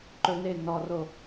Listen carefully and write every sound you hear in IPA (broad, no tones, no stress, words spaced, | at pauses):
ǃɵne nɔro